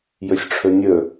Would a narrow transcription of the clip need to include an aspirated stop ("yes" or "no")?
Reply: yes